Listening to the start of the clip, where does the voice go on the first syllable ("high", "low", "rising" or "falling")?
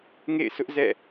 falling